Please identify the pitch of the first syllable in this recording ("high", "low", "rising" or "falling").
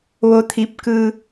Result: rising